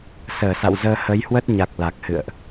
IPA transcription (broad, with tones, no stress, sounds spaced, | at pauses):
s əː˧˩ s a̰˧˨ w z əː˧ h ə˨˦ j h w ə˦˥ t̚ ɲ a˨˩ k̚ l a˨˩ k̚ h ɨ̰˧˨ ə̯ ʔ